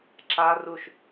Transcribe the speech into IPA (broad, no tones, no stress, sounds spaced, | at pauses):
ǁ a r u ʃ